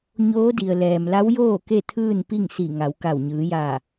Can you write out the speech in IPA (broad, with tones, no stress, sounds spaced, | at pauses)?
ɲ oː˧˥ d i˩ ə̯ l ɛː˩ m l a˧˥ w j oː˥˨ k e˥˨ t̪ʰ ɯː˥˨ n p i˥˨ ŋ s i˧˩ ŋ a˩˧ w k a˧˩ w ɲ ɯː˩˧ j aː˧˩